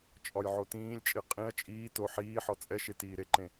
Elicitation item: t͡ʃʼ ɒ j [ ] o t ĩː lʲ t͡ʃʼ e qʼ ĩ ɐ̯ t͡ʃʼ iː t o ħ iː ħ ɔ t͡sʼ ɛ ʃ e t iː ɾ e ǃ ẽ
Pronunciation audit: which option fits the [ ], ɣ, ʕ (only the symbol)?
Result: ʕ